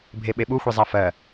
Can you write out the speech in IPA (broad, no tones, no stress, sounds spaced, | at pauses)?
bʱ e ɓ e ɓ u xʷ i zˤ a f ɜ